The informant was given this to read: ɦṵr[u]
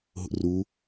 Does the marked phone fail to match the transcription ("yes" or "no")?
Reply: no